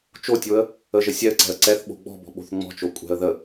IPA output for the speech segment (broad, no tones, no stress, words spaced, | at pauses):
t͡ʃotʲoə̯ | əʒə sʲɛə̯ǀɛ̤ə̯ ǀɛθ ɓo̤ɡ͡bɔ̤bɔ̤ ɓo̤θŋ͡mɔ̤t͡ʃo kʷʼɛ̤ə̯ ðə